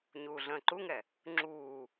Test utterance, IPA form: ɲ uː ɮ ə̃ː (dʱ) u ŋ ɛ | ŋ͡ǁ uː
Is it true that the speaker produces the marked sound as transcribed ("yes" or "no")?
no